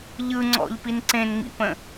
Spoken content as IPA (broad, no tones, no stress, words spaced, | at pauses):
ʎɯ ŋ͡ǀɔ̰ʎpin ǀẽnŋ͡mḭpə̃